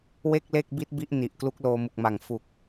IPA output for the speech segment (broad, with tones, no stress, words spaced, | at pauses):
we˥˩k̚le˥˩k̚bi˦˥t̚bi˦˥ʔ ni˨˩ʔ klu˦˥k̚loː˧mu˨˩k̚ma˨˩ŋ fu˨˩k̚